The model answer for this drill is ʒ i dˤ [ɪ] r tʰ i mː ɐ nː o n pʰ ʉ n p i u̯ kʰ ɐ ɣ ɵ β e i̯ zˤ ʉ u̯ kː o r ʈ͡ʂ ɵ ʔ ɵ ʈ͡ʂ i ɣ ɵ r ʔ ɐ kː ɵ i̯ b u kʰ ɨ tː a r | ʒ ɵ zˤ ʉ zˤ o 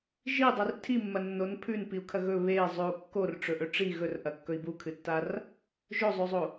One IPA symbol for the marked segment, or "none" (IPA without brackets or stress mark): ɨ